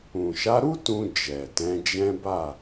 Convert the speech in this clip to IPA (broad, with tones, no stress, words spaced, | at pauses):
ũ˨ʃa˨˦ɾu˦ tũ˧ d͡ʒɛ˨tɛ̃˨˦d͡ʒɛ̃˦ ba˦˨